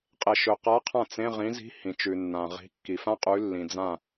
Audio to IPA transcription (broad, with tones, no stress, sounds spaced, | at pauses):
qʼ e˩ ʃ ɵ˩ q a˨˥ qʰ ã˥˩ t͡s ẽ˧˥˧ ʁ ĩ˨˥ z i̤˧˥˧ h ĩ˩ t͡ʃ ʉ˩ nː ã˩ ʁ i̤˨˥ kː i˩ f ã˥ qʼ ʉ˨˥ lː ĩ˩ d͡z ã˥˩